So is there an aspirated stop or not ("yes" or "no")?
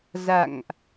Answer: no